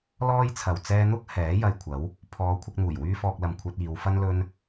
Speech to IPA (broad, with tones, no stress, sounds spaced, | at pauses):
l ɔː˥ j t͡sʰ ɐ˨ w t͡s ɛː˧ n̪ ʊ˥ k̚ h ɛː˨˥ j ɐ˨ j kʷʰ ɐ˨˥ w | pʰ ɔː˨˧ kʷʰ ɪ˧ k̚ n̪ uː˨˩ j w yː˥ f ɔː˧ k̚ l ɐ˨ m kʷʰ ɐ˧ t̚ iː˨˧ w f ɐ˥ n l ɵ˥ n